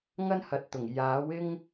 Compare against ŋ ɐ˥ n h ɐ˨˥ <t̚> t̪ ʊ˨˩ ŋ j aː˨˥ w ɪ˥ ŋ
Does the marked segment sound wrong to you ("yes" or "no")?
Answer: no